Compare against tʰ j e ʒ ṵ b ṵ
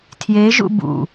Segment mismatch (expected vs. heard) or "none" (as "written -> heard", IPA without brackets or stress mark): none